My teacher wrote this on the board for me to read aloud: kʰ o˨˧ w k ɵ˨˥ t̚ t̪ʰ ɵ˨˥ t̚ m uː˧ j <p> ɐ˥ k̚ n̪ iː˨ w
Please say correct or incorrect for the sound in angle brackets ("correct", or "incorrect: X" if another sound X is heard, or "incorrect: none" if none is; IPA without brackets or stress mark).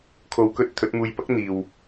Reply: correct